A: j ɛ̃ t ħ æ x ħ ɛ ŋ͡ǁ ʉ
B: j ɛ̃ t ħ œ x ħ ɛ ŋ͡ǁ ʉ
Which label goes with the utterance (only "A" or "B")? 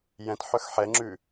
B